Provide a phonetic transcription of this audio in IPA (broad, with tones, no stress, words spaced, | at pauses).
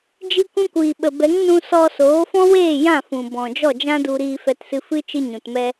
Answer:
d͡ʒi˧kʷũ˧kʷiː˨ɓə˨ bɛ˨˦ŋnũ˧ sɔ˧soː˨˦fɔ̃˦weː˦˨ jã˦˨fũ˨ bɔ̃˨ d͡ʒɔ˦˨d͡ʒã˦du˧ ɾiː˧fɛ˧tsɨ˧fɨ˦ t͡ʃɨ˧ɲũ˨tmɛ˧